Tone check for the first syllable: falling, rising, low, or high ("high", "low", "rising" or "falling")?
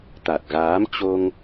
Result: low